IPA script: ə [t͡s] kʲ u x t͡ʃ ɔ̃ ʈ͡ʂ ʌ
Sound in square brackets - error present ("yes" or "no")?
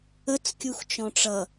no